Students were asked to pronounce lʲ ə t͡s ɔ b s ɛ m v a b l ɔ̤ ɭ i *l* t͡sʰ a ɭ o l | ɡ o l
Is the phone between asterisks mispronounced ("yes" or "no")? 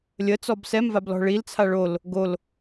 no